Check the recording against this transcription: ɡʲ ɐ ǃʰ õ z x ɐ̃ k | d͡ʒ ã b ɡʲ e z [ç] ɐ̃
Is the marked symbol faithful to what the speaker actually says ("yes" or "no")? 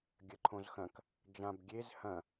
no